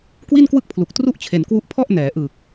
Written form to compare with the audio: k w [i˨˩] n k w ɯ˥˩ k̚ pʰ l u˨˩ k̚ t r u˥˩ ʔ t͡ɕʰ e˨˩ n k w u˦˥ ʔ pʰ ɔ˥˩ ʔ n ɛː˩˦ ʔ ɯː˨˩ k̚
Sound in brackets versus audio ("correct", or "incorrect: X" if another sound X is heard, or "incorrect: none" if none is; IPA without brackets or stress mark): incorrect: i˥˩